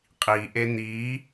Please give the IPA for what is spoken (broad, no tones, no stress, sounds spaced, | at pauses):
qʼ i ʔ e n̪ i